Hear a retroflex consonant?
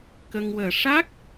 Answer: yes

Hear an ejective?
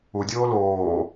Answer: no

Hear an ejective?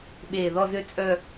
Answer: yes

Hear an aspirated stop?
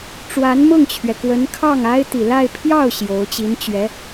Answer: yes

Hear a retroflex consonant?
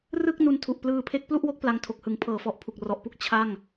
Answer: no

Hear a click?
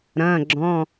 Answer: yes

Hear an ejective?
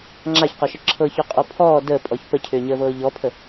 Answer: yes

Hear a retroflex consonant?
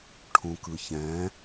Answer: yes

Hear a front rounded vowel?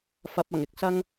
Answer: no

